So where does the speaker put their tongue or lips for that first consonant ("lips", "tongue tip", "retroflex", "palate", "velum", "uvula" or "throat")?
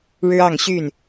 retroflex